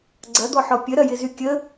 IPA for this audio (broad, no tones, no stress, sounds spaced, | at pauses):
ɡ͡ǀ ɐ d̪ ɔ ħ ɔ pʲ ə ɾ ɐ j ɪ z y kʲ ə